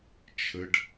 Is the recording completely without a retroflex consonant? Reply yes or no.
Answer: no